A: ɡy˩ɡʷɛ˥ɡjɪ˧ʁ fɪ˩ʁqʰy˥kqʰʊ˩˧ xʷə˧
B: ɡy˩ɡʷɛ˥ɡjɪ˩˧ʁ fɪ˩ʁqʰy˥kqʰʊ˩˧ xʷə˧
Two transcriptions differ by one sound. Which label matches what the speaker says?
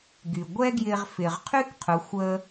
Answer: A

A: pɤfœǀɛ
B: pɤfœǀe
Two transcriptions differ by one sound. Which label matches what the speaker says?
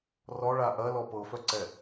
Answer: A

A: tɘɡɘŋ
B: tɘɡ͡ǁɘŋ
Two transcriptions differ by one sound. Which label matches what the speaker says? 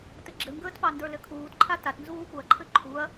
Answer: B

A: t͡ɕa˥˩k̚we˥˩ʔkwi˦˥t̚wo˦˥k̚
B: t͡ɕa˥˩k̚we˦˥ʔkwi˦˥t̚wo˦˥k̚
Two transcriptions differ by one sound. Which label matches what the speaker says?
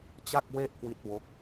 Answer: A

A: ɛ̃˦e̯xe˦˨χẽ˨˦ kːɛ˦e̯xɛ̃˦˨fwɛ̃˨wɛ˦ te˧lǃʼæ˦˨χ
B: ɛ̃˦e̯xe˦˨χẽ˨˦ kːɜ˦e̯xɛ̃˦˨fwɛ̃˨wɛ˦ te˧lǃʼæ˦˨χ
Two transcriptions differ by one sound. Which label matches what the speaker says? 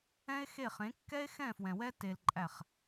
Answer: A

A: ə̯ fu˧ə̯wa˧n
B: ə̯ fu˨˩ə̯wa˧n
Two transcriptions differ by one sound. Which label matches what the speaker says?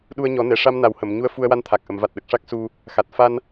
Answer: A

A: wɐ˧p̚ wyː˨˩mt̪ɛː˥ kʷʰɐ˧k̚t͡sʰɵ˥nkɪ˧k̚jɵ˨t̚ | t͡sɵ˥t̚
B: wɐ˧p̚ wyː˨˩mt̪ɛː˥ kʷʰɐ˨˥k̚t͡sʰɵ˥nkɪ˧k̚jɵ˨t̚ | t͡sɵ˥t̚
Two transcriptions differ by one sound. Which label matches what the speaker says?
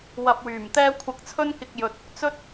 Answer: A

